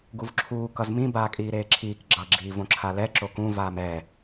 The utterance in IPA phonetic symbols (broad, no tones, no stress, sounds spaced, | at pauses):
ɡ u v ǁʰ uː k ʌ z m ĩ b aː kʼ iː ɾ eː ǁʰ iː k ɡ͡ǁ ʌ ɡ͡ǁ iː v õ ǁʰ a l ɛ ǁ o k ũ v aː m ɛ